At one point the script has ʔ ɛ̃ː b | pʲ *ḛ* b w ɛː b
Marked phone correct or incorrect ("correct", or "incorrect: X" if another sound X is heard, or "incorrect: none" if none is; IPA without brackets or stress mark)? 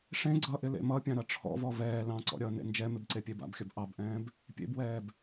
correct